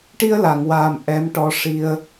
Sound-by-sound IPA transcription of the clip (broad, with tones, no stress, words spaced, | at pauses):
ʈi˧ə̯la˨˩˨ŋwaː˨˩m ʔɛ˧˥mʈɔ˧˥ ʂi˧ə̯